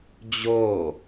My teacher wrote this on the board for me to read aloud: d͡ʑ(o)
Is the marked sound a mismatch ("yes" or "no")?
no